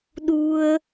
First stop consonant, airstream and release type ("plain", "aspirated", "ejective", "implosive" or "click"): implosive